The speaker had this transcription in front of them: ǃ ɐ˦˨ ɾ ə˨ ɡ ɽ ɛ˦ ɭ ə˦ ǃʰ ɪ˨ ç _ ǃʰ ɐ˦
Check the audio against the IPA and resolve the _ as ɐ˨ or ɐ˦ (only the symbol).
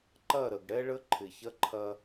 ɐ˦